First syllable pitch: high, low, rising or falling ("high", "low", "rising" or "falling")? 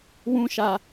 high